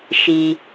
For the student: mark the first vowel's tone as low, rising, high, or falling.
low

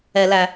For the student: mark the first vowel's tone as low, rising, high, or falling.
low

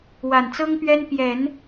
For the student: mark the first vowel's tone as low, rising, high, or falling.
low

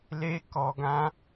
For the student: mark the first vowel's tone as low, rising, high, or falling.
high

